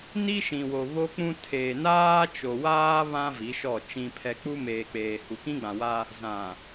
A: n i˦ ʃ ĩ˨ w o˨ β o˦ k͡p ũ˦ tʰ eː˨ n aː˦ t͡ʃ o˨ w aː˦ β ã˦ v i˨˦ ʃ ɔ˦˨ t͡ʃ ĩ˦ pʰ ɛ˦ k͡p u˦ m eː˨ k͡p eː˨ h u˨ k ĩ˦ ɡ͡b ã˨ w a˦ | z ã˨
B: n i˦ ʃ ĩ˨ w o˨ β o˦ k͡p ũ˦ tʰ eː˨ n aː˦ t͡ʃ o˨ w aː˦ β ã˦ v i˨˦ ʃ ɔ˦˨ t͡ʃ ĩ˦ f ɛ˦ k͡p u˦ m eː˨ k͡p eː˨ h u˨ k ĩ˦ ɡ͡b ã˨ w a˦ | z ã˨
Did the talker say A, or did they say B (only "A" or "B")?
A